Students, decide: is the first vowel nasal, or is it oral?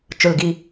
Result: oral